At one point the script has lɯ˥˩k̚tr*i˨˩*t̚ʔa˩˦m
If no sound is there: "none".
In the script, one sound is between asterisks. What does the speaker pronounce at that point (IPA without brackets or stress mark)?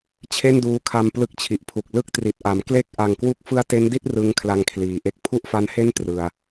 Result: i˨˩